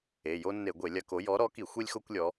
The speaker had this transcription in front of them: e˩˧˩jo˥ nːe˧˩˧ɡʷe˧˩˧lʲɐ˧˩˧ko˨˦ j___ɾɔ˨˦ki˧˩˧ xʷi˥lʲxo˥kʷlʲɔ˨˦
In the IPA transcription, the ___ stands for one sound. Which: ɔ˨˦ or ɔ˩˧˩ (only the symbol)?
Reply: ɔ˨˦